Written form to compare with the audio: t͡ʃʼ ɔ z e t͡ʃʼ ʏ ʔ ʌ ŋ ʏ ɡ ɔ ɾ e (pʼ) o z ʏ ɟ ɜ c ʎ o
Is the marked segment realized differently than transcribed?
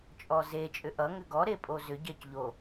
no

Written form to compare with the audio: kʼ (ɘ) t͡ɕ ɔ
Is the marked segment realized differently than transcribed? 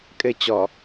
no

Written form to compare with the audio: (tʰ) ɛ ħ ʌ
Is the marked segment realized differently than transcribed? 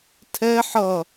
no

